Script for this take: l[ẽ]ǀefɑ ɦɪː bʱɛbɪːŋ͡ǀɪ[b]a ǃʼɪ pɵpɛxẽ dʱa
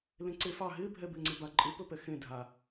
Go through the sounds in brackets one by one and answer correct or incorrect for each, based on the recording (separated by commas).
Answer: correct, correct